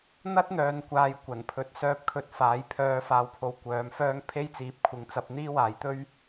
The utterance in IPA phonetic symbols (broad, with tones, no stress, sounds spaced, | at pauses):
n̪ ɐ˥ t̚ n̪ œː˨ n kʷ aː˨ j kʷ ɐ˨˩ n pʰ ɵ˨˥ t̚ s œː˧ p̚ kʰ ɵ˧ t̚ f aː˨˥ j pʰ œː˧ f aː˧ w pʰ o˨ w kʷ œː˨˥ m f œː˥ ŋ pʰ e˥ j t͡s iː˨˥ p̚ kʷʰ ɪ˨˥ ŋ t͡s ɐ˨˥ p̚ n̪ iː˥ w aː˨˥ j t̪ ɵ˥ ɥ